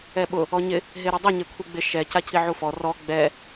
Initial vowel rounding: unrounded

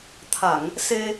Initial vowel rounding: unrounded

